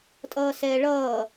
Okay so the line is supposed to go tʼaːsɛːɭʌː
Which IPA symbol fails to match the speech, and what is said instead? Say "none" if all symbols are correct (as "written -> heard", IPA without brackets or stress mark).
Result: aː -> ʌː